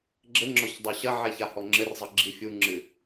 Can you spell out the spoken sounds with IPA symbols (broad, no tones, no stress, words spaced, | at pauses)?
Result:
ɡ͡ǁɘŋ͡ǁɔç dˤuɕɐʕɛ çahɔŋ͡ǁɘrzˤɨ ɡ͡ǁifʲuŋ͡ǁɨ